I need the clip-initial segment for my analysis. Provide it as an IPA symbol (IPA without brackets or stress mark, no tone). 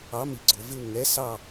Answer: ɑ